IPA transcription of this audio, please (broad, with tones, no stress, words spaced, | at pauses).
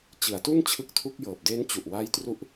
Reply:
t͡ɕɯ˩˦a̯tu˥˩n t͡ɕʰɯ˦˥k̚tʰu˥˩k̚jɤː˨˩p̚ de˦˥nt͡ɕu˨˩ʔwa˦˥jtru˦˥ʔ